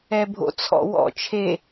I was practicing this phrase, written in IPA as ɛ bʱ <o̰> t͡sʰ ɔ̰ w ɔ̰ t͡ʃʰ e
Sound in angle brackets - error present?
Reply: no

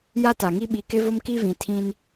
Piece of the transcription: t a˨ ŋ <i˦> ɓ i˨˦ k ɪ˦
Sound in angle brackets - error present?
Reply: no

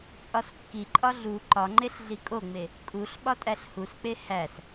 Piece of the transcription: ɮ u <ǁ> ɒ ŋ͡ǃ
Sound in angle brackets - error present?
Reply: yes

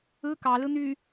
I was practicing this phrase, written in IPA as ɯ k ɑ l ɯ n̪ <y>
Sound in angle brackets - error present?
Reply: no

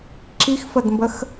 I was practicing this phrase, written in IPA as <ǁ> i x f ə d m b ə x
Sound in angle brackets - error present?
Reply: no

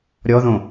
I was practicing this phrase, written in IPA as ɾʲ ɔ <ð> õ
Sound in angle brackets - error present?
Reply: no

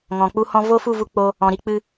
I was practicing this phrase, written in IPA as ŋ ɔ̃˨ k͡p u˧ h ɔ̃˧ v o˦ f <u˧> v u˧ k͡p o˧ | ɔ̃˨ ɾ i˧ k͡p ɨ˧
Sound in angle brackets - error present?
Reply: yes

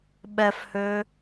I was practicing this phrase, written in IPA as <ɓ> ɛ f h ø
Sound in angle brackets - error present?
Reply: no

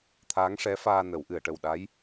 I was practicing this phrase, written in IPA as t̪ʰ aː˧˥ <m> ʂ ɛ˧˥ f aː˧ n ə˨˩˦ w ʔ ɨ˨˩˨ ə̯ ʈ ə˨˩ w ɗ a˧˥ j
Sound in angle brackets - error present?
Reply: yes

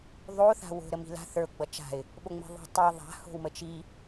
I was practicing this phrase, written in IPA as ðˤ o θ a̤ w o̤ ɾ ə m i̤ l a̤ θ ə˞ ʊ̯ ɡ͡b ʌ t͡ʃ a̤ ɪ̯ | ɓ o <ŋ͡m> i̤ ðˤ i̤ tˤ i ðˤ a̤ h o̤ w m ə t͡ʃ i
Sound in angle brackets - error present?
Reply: no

